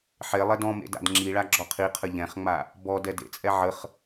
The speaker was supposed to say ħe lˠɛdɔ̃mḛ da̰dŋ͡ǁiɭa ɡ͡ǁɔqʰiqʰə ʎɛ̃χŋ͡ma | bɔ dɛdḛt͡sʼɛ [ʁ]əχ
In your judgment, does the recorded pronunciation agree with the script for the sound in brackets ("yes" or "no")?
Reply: no